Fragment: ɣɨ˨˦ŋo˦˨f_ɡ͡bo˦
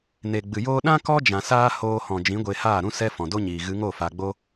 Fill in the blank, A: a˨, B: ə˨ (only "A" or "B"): A